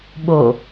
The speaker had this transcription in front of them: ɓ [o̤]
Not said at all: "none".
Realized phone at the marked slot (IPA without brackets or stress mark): o